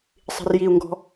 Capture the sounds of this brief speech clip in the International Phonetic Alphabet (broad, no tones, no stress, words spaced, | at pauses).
sˤi̤rjiu̯ŋɡɔ̤